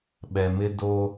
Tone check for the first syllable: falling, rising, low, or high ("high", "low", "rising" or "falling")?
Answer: low